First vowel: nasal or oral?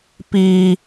oral